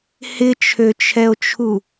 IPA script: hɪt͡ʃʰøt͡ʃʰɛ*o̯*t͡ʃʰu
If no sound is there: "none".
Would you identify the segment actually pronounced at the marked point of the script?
o̯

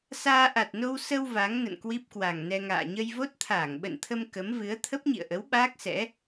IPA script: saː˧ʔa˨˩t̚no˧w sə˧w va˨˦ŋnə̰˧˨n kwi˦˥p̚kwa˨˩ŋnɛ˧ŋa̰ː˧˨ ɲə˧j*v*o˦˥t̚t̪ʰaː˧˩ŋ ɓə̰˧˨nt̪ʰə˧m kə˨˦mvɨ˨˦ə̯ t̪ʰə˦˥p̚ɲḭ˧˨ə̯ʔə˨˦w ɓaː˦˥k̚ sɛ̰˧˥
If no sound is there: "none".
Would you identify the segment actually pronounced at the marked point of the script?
v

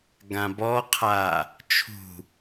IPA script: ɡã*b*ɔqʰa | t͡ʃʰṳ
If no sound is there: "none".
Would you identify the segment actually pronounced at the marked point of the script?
b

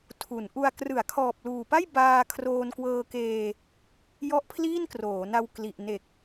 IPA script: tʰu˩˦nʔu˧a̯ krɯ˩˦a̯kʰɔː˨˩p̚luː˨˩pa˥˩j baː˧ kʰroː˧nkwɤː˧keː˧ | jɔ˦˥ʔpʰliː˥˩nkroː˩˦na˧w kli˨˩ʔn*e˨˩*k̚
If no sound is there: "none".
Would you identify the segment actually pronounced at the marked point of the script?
e˨˩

